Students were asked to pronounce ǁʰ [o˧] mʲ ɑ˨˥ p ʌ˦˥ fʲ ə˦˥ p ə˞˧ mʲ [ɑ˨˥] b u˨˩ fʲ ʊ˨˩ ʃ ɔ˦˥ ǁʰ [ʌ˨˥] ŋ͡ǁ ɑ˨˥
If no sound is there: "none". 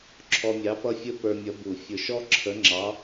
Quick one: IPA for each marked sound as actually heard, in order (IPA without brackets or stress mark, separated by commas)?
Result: ɔ˧, ʌ˨˥, ə˨˥